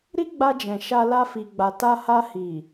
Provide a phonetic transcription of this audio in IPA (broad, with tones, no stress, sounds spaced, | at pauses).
ɾ i˦ ɡ͡b a˧ d͡ʒ ɛ̃˨ ʃ a˧ l a˧ f i˨ ɡ͡b a˨ t a˧ h a˧ h i˨